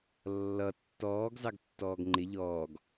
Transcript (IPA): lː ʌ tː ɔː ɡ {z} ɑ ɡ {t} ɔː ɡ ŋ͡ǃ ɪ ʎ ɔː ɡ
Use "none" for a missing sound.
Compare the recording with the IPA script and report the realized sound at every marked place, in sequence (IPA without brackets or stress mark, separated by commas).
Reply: z, tː